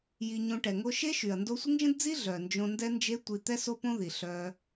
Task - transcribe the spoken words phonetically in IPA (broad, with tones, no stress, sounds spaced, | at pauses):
j i˧ ɲ õ˧ ʈ ɛ˨ ŋ o˧ ʃ e˦ ʃ y˨ ɐ̯ n d o˧ sʷ ə˦ ŋ ʒ ə̃˦ d d͡z i˦ ɮ œ˨ n d͡ʒ õ˧ n d ɛ˦ n d͡ʒ e˦ tʷ i˧ t̪ ɛ˦ s o˦ p õ˦ ð i˨ ɬ œ˦